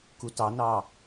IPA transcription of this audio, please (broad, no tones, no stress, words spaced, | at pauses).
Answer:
kutɑnɑ